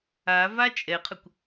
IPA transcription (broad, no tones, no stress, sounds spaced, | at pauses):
a v a t͡ʃʼ ɛ qʰ ə kʷ